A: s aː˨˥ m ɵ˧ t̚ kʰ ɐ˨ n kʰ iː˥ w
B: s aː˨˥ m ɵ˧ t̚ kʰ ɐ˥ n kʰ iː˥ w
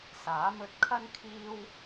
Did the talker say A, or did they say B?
B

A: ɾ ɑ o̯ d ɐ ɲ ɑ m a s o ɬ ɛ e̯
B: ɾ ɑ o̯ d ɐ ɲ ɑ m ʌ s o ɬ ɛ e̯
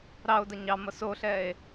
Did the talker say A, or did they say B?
B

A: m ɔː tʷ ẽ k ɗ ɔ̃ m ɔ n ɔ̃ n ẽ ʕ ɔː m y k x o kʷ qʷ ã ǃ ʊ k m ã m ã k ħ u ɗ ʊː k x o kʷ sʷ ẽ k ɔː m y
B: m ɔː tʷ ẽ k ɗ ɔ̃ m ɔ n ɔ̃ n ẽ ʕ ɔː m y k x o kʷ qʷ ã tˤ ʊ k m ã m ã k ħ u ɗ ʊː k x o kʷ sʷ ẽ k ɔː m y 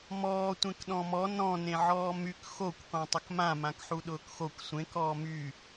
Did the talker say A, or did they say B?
B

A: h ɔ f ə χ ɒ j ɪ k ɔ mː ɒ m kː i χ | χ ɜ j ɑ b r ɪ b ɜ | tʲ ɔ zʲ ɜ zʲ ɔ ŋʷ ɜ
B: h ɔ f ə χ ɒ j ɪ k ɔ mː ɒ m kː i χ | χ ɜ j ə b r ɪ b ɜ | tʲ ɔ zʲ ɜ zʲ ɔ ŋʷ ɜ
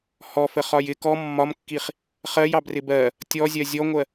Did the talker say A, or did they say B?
A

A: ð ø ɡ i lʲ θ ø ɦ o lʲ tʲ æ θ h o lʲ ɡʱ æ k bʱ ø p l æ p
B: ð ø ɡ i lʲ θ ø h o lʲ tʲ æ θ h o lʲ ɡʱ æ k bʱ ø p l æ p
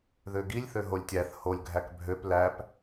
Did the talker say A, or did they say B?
A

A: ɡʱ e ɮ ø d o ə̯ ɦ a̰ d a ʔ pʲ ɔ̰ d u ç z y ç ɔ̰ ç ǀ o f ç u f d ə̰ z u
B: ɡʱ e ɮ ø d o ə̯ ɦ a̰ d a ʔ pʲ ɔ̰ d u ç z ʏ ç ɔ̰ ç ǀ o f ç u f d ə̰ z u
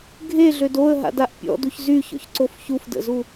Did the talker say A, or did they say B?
A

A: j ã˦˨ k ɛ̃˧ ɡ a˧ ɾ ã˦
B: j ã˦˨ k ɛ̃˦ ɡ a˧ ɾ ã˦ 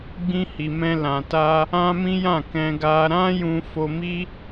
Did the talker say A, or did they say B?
A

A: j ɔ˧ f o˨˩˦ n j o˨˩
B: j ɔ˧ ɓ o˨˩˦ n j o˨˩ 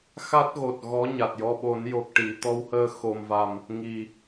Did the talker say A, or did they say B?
B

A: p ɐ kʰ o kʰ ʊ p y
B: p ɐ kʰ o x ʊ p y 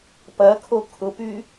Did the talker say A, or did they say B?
A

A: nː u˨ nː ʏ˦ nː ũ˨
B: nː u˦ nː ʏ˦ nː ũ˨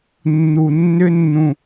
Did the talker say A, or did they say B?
A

